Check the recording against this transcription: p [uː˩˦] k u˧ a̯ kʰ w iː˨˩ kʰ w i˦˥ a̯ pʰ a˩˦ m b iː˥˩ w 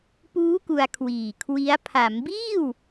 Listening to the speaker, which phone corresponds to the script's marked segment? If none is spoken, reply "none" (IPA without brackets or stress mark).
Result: uː˦˥